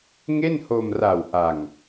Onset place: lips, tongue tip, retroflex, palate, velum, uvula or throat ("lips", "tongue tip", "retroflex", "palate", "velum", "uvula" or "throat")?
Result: velum